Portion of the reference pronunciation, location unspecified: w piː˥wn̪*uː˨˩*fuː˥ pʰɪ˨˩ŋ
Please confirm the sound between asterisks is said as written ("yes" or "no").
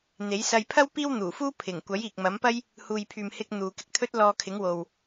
yes